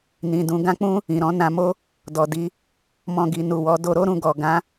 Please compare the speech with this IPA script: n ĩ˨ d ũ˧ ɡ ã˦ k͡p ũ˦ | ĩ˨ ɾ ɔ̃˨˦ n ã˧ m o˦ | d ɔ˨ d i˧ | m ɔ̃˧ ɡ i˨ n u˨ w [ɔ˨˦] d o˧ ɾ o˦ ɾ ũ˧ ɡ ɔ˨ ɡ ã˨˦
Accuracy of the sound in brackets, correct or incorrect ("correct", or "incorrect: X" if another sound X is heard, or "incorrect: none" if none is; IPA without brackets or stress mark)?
correct